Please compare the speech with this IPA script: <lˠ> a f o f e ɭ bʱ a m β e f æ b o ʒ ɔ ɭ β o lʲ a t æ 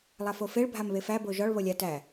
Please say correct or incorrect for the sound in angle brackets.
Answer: correct